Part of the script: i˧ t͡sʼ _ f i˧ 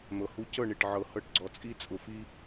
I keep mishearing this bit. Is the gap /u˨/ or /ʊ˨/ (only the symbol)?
ʊ˨